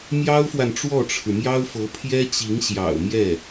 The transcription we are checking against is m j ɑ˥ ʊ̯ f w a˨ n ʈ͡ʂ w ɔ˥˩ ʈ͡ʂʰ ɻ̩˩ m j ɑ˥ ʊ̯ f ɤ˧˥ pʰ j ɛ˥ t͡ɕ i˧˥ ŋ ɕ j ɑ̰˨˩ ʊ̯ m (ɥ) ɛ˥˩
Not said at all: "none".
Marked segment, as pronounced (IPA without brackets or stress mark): j